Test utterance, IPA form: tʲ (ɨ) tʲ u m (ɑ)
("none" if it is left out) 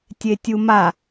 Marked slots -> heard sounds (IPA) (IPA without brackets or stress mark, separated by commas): e, a